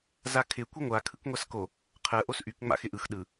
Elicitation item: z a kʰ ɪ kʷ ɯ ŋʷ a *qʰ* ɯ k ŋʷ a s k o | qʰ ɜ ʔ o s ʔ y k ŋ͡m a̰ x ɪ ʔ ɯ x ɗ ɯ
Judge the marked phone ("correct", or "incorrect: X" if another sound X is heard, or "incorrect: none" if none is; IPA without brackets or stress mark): incorrect: kʰ